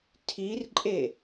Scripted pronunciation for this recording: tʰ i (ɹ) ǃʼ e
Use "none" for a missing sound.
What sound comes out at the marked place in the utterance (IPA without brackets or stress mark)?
r